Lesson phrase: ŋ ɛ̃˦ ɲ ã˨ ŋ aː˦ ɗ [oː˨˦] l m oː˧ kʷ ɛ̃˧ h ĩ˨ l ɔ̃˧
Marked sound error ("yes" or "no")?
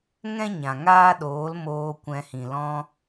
no